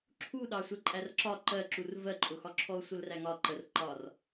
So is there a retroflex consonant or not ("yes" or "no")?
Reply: no